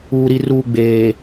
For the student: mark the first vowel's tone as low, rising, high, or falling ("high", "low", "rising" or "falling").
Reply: low